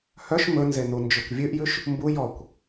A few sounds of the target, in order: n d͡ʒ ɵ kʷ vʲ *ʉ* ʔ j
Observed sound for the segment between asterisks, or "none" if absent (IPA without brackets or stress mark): ʉ